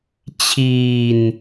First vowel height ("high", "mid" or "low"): high